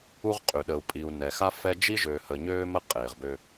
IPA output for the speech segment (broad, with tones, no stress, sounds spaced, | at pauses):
u˦ ʁ qʼ y˨ ɗ ə˨ u̯ pʼ i˨ u̯ n ɛ˨ x a˦ f ɛ˦ d͡ʒ i˦ ʒ øː˨ h ə˨ ɲ øː˦ m ə˦˨ qʼ eː˨ ʁ b ø˦